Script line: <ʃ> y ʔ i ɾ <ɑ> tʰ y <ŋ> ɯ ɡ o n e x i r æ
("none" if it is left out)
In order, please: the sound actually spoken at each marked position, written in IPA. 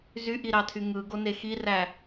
z, ɑ, ŋ

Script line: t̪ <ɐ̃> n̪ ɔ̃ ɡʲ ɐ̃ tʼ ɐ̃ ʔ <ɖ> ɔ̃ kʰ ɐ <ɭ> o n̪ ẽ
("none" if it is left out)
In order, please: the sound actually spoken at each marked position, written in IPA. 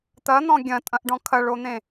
ɐ, ɖ, ɭ

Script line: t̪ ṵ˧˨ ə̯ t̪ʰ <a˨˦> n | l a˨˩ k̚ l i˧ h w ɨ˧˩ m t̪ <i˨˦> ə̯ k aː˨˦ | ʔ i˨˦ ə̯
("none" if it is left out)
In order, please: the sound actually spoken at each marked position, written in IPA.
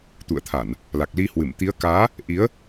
a˧˩˨, i˨˦

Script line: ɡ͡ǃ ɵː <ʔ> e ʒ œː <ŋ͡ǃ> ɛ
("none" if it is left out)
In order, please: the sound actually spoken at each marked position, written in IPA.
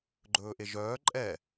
ʔ, ǃʼ

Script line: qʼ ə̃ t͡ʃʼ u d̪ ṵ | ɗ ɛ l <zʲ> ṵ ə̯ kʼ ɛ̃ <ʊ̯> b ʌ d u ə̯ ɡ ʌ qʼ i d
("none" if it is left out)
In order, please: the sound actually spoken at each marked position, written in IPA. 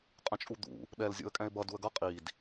zʲ, ɪ̯

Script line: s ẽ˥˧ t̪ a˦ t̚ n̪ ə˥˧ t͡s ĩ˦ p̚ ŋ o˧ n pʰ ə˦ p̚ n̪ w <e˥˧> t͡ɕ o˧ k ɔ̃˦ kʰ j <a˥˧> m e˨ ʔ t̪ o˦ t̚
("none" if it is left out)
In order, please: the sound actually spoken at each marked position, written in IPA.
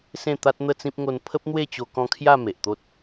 e˥˧, a˥˧

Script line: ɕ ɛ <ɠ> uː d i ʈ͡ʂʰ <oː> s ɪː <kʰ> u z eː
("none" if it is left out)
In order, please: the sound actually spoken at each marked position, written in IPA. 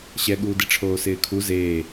ɠ, oː, kʰ

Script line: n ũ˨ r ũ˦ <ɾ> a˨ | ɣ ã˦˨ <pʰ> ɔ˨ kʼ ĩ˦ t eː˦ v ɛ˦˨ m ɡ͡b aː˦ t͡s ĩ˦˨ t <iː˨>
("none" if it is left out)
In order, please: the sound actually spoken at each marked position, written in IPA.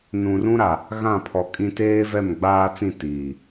ɾ, pʰ, iː˨

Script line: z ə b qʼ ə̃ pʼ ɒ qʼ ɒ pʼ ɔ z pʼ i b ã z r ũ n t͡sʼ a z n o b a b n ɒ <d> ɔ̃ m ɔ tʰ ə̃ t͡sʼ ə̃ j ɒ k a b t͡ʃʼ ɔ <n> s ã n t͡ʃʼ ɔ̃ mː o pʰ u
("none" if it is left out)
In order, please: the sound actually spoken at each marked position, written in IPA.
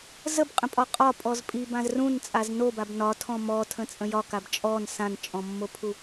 tʰ, n

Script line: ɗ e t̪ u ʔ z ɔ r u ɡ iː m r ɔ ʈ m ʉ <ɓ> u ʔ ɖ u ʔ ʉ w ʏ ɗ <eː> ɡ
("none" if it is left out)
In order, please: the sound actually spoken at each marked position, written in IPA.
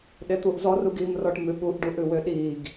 ɓ, iː

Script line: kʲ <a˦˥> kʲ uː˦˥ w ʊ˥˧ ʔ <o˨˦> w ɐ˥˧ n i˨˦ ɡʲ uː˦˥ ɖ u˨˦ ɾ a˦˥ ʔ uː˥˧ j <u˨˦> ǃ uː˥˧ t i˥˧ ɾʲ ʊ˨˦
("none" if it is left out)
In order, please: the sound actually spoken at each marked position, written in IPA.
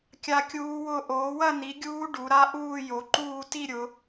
a˦˥, oː˨˦, o˨˦

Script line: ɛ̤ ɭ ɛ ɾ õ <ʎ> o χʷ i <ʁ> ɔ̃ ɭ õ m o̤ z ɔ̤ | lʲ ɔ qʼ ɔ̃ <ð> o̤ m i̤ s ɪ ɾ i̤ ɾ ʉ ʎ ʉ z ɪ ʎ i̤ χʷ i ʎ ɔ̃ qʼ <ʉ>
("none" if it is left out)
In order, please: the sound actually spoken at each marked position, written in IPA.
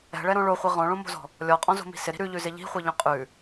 ɭ, ʁ, z, ʉ

